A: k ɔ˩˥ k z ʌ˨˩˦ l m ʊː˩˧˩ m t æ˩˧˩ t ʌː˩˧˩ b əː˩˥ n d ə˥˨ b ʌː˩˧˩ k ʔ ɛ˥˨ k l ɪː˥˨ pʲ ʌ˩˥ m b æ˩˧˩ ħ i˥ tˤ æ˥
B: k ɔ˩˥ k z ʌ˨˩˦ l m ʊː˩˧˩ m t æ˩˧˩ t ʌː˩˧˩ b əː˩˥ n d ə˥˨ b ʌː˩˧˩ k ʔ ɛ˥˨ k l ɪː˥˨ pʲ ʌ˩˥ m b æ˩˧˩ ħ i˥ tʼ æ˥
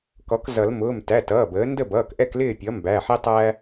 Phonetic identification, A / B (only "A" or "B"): A